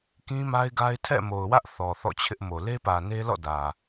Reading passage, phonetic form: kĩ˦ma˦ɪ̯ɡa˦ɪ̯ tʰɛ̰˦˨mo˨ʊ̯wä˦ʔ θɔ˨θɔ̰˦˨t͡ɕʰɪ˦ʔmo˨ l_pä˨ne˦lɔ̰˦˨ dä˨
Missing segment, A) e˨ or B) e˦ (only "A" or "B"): B